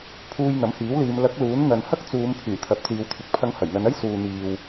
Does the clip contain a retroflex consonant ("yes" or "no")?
no